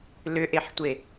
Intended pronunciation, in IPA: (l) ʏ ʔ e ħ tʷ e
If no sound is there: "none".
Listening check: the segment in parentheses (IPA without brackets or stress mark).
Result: l